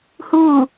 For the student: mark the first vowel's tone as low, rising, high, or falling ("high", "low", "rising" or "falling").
falling